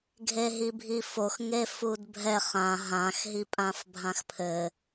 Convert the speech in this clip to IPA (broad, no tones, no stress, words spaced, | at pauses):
ɡʱeɦibʱifox ŋefudbʱɛ χã ɦãxɦi pʼãfbʱãxpʰɘ